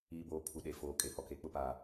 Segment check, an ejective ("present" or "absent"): present